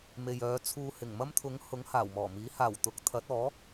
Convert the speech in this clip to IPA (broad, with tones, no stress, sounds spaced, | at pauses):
m e˨ j œː˨˧ t͡sʰ uː˧ h ɪ˨˩ ŋ m ɐ˥ m t̪ʰ ʊ˨˥ ŋ h ʊ˨˥ ŋ h aː˨˩ w m ɔː˨˩ m iː˨˥ h aː˨˩ w t̪ ʊ˨˥ k̚ t̪ʰ ɐ˨˥ t̚ ɔː˨˥